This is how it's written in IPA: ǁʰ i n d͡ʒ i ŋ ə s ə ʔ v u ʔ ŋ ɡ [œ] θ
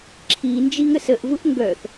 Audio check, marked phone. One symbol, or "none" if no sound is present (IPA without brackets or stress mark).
œ